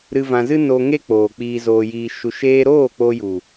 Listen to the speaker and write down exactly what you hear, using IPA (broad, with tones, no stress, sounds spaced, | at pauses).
ɾ ɨ˧ v ã˧ z ɨ˦ n o˧ ŋ e˦ k͡p oː˨ k͡p iː˧ z oː˧ j iː˧ ʃ u˨ ʃ eː˧ ɾ oː˦˨ k͡p o˧ j u˨